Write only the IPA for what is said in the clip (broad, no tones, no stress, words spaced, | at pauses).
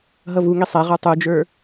ɦʌvuŋi sˤɛʁə˞ tˤud͡ʒə˞